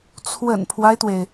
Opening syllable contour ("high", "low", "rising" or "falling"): low